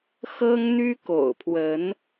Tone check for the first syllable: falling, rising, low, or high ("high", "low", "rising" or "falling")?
high